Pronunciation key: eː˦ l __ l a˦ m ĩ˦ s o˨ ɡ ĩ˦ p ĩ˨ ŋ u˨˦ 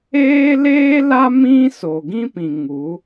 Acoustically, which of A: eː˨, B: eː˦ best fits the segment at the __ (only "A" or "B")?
B